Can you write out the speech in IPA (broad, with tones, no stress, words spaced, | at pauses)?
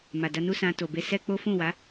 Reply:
ma˨da˧nu˦sã˧ to˨be˧sɛ˦k͡po˦ fũ˦˨wa˨˦